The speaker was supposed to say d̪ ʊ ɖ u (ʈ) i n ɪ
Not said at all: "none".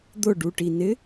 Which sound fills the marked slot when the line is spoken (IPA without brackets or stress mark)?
ʈ